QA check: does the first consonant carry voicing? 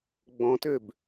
yes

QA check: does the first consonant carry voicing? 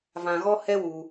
yes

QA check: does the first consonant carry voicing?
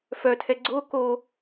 no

